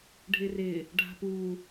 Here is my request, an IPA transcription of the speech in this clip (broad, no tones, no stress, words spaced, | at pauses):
ɖʱɪrɪ | ɖʱa̤pu